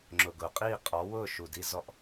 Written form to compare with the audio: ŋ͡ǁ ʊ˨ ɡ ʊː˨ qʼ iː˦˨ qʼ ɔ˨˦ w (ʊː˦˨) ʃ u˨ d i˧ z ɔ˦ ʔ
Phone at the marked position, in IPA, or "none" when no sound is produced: ʊː˦˨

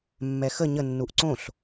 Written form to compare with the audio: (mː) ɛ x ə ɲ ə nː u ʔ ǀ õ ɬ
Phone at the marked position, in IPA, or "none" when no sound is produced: mː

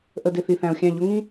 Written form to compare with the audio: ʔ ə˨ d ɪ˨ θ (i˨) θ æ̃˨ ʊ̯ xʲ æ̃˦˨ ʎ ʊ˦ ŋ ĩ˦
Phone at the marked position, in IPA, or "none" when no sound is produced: i˨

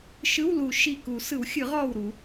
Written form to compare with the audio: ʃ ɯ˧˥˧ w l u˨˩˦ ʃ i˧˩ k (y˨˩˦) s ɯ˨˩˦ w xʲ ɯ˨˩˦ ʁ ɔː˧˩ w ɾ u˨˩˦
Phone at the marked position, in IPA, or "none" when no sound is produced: u˨˩˦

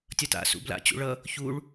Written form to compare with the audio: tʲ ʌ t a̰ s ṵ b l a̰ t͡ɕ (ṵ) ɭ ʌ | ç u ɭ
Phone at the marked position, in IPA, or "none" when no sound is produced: ṵ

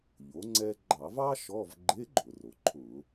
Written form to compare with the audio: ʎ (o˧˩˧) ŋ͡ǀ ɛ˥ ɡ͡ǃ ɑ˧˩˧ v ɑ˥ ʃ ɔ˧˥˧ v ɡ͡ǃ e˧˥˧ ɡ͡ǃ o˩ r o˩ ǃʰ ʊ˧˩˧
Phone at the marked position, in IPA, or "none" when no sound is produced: o˩˥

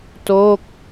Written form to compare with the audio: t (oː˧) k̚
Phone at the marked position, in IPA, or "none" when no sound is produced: oː˥˩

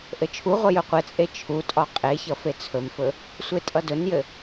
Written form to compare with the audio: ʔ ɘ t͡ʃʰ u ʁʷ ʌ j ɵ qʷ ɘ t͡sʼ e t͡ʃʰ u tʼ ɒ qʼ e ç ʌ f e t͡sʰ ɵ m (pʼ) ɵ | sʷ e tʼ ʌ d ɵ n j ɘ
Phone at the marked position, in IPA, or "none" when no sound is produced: f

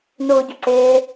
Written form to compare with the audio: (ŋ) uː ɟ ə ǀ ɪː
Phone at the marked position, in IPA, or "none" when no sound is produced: n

